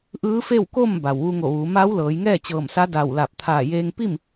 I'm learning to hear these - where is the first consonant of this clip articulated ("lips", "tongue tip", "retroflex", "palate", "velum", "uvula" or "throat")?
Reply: throat